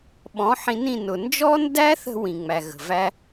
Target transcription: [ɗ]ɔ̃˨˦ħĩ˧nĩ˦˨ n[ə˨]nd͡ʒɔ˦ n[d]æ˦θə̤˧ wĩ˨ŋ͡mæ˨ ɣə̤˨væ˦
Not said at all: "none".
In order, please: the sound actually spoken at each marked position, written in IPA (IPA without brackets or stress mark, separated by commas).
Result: ɓ, ʊ˨, d